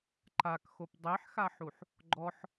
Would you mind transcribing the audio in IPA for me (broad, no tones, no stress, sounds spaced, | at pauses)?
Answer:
ǃ a k x o p dˤ e ħ x a ħ u ħ | ɡ͡ǃ ɔ ħ